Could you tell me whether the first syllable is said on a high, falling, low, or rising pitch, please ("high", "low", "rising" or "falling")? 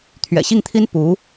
low